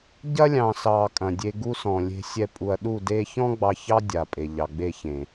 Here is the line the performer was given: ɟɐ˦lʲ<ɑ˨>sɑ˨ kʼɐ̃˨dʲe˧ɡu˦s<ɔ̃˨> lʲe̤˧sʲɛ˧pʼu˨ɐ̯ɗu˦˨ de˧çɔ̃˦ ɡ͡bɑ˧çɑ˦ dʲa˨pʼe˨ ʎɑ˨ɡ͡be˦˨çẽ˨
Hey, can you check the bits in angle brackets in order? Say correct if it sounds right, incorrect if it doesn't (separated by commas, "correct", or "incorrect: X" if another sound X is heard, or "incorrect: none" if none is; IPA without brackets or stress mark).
incorrect: ɑ̃˨, correct